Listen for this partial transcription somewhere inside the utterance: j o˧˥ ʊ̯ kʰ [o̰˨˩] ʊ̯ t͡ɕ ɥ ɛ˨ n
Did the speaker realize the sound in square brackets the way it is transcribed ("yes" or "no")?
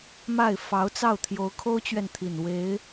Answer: no